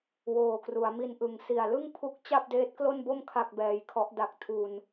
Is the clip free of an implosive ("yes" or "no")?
yes